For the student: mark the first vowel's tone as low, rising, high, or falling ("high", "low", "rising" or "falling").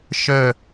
falling